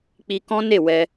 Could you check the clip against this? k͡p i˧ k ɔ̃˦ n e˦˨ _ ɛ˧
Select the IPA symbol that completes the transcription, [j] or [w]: w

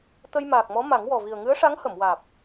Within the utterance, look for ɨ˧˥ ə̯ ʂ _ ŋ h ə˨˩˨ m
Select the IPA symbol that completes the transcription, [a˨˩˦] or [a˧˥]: a˧˥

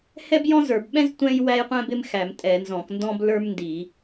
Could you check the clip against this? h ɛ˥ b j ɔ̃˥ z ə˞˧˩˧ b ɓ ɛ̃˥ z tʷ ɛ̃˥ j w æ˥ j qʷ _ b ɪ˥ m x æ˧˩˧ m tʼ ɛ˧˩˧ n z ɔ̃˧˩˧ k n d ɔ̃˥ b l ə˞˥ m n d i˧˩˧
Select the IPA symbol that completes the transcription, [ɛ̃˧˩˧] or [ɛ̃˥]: ɛ̃˥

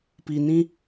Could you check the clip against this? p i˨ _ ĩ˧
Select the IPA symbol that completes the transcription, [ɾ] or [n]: n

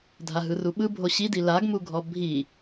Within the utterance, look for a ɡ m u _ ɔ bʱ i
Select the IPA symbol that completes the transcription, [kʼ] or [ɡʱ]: ɡʱ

